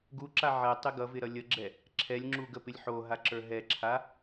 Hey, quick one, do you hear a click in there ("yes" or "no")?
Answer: yes